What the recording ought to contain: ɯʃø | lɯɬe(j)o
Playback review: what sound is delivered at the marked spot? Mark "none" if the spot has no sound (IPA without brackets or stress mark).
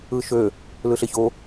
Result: ç